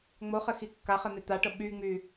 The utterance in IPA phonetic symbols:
ŋ͡moχɘxi kːaχɘn̪e t̪aʈɤ ɓyŋ͡my

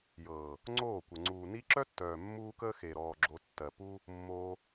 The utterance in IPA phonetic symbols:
jɤː˨ | ŋ͡ǀoː˦˨kʷə˨ ŋ͡ǀuː˨ni˦ ǁœ˦tːœː˨ mːuː˦kəː˦ xe˨ ɾɔː˨ ɡ͡ǁo˧tːɜ˨ pu˦ | mːoː˧

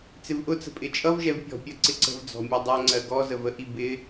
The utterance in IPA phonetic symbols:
t͡sɪvʔʊt͡sə̤ pʼɪt͡ʃʼʌvʒɛv pʲɔ̤pʲɜ ǀɪǀə̤vd͡zɔ̤ mʲɛdˤɜŋ͡ǀɜ ɡɔzəv əʔi bɪ

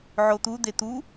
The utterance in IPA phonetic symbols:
ʕot̪ud̪e t̪u

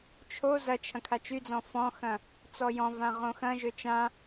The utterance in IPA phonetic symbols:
t͡ʃʰo zɐt͡ʃʰɐ̃ kʰat͡ʃyd͡zɔ̃ fɔ̃xɐ̃ | t͡sɔjɔ̃vã ʁõxɐ̃ʒø t͡ʃã

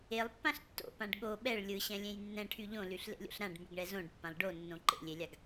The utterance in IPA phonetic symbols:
elˠpːãɬ tːo̰pãɖ ɠo ɓɛɭ lʲɯɕɛ̃lʲẽj nːɛ̃ʈʰy ʎõlyɬlḛlʲo̰ɬ ɾãɖmyɡɳɛ zõɖpːãlˠ ɖonːõ ǃḛlʲelʲaɡ

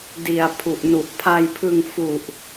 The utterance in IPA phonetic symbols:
di˨˩a̯ pʰu˨˩ʔnu˨˩ʔpʰa˧jpʰɯ˧ŋ fu˨˩ʔ

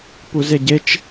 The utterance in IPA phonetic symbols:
puzeɟet͡ʃ

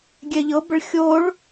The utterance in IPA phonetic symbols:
ɡʲɛʎɤbəɭ xʲoɭ

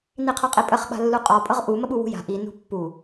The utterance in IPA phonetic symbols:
niqʰɔqʼipʼəχ ɓa̤lːuqʼɔ pʼɤʁʔu məɓuwṳja̤ ʔi nṳpːu

